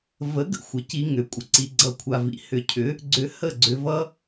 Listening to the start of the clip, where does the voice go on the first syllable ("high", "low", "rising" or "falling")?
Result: rising